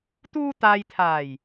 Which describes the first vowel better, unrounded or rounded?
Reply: rounded